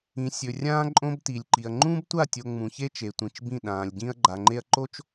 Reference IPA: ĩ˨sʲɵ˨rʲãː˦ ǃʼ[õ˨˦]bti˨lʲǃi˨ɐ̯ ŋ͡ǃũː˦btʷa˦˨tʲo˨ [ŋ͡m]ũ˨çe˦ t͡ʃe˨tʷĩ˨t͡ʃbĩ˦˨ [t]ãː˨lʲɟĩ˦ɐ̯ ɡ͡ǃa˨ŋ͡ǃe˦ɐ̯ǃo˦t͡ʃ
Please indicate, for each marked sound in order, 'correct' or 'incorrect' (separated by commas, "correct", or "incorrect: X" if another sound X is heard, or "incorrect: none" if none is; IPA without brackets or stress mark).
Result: incorrect: õ˦, correct, incorrect: ɗ